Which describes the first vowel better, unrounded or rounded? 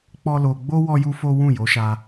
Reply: rounded